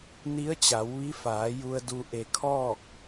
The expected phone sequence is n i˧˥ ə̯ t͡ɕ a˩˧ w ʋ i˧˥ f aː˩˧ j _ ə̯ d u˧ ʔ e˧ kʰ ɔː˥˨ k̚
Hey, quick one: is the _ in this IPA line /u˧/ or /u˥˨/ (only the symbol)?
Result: u˧